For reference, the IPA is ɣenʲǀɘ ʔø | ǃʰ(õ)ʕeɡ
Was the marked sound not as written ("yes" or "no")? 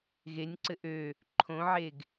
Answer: no